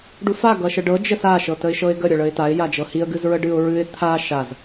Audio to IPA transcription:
ɖ u f a ɡ ʌ ʃ ə ɖ ɤ d͡ʒ ə s a ʃ ɤ t ə ɪ̯ ʃ ɤ ɪ̯ ɡ ə ɾʲ ʌ ɭ ə ɪ̯ t a ɪ̯ j a d͡ʒ ɤ h i ə̯ ɡ ɨ z ɹ ə ɖ ɨ ʊ̯ ɹ ɨ ɪ̯ t̪ʰ a ʃ a z

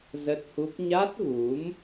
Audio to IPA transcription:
z ə˦˥ t̚ h u˦˥ p̚ ɲ a˦˥ t̚ ɣ u˨˦ m

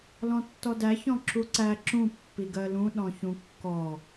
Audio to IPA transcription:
l ɔ̃ tː ɔ d æ ç ɔ̃ ǁ u ǀ æ ǁ ũ pː i ɡ ɜ l ũ ɗ ɔ̃ ç ũ kː ɔ

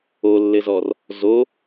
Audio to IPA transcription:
o lː ɘ z ɔ r | z o

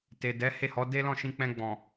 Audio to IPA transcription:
t e˨ d ɛ˨˦ h e˦˨ h ɔ˨˦ d e˦ l ɔ̃˦˨ ʃ ĩ˧ k͡p ɛ̃˧ ɡ͡b ɔ̃˨

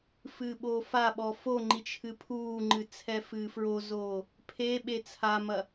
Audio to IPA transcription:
f ɨː ɓ oː f a ɓ ɔ f o ŋ͡ǃ i t͡ʃʰ ɨ pʰ uː ŋ͡ǃ ɨ t͡sʰ ɛ f ɨː f ɹ o z oː | pʰ e ɓ e t͡sʰ a m ɐ

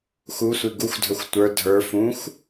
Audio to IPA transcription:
x u sʷ i ɡ u xʷ dʱ ə˞ xʷ tʷ ə˞ dʱ ə˞ f ũ xʷ

